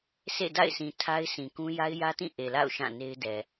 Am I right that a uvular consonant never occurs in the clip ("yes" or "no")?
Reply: yes